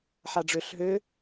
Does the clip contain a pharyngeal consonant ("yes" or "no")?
yes